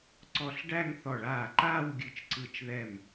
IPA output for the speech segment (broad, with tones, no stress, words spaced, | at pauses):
ǀɔ˧˩ɬɖæ˥˧ŋ θɔ˧˩ ɭaː˧˩ǃaː˥˧w ɡʲɨ˧˩t͡ʃǀɯ˧˩t͡ʃðɛ˧˩m